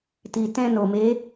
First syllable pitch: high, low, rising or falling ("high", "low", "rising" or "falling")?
low